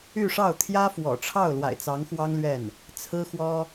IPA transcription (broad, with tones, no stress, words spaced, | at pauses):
y˥˧ʂɑ˥˩ʊ̯ t̪ʰjä˥fwɔ̰˨˩ʈ͡ʂʰɑ˥˩ʊ̯ lwa̰˨˩ɪ̯t͡sɑ˧˥ŋxwɑ˥ŋlɥɛ˥˩n | t͡sʰɹ̩˥xwɔ˥